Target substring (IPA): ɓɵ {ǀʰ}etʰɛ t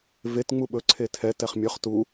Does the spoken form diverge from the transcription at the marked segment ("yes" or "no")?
no